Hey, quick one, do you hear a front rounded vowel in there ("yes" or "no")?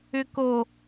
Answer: yes